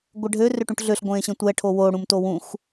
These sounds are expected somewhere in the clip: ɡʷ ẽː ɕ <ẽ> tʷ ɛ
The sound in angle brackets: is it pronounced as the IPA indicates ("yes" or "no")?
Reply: yes